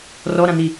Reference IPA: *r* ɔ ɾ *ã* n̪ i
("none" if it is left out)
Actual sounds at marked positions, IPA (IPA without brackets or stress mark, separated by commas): r, ã